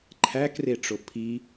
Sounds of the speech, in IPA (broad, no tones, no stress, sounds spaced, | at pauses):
ǃʰ æ k r e ʈ͡ʂ o pʰ i